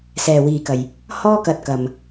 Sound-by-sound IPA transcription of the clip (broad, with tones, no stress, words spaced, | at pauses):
sɛː˨wiː˨kɐ˨j | hɔː˥kɐ˧t̚kɐ˨m